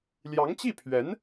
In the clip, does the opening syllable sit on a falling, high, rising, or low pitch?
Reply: rising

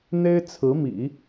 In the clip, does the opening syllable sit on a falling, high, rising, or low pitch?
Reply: high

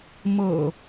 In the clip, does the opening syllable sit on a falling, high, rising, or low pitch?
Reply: low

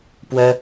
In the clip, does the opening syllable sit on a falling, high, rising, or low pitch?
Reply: high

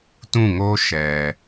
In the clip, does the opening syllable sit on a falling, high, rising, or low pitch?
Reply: falling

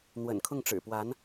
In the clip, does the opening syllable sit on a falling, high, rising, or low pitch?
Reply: low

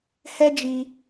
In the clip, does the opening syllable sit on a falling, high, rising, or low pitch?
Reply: high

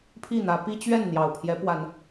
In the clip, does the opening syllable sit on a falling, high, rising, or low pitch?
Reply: falling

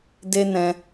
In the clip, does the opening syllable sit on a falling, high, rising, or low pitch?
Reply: high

